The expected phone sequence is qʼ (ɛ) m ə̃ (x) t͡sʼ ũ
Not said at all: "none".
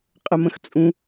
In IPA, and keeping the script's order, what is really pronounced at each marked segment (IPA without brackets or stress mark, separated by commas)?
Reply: ə, x